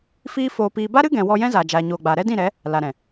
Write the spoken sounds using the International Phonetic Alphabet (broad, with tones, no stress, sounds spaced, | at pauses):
f iː˦ f oː˧ p iː˧ b a˦ ɾ ɨ˦ ɡ ɛ̃˨ w ɔ˧ j ɛ̃˦ z aː˨ d͡ʒ aː˨ ɲ oː˨ ɡ͡b aː˨ ɾ ɛ˦ d ĩ˦˨ ɾ ɛ˨˦ | l a˨ ɾ ɛ̃˨